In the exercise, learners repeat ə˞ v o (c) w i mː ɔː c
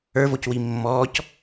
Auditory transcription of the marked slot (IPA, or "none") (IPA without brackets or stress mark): c